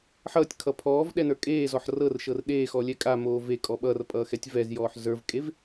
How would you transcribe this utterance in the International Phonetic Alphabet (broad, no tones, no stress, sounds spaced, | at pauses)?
ħ ʌː tʲ kʰ ʌ pʰ ɔː v ɗ ɛ n ə˞ kʼ eː z ɔ ħ r ɤ r ʃ ɤ r ɗ eː x ɔ lʲ ɛ kʼ a m oː v e kʼ ɔ ɓ ʌ r pʼ ʌː x ɛ tʲ v ɛ z j ɔː ħ z ə˞ v kʼ e v